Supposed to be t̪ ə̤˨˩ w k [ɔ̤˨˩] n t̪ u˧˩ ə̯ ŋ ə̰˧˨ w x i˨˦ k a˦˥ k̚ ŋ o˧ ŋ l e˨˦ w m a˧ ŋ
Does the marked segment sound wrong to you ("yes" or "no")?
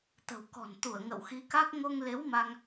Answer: no